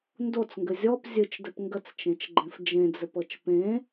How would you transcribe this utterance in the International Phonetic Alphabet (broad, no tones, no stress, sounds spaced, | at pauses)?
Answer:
n d o t͡s ŋ ɡ ɘ zʲ ɔ p zʲ ɨ t͡ʃ d ɘ p ŋ ɡ ə t͡s t͡ʃ ẽ t͡ʃ ɡ͡ǃ ẽ f d͡ʒ ẽ d͡z ɘ p ɤ t͡ʃ p ẽ